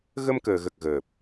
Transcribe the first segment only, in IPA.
ɣ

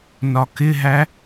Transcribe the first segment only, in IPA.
n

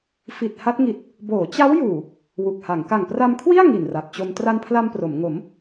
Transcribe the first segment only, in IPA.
f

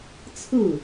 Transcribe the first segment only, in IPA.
t͡sʰ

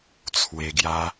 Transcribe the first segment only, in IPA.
t͡sʰ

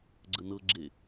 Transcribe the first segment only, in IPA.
ɡ͡ǀ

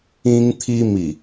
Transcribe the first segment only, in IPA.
ĩ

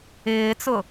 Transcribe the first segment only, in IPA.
ɪː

